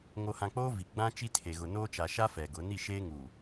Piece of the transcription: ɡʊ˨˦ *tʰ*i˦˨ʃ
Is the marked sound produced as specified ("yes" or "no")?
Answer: no